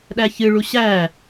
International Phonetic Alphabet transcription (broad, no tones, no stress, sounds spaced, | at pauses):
ɗ æ ç ɨ ɭ u ɕ æ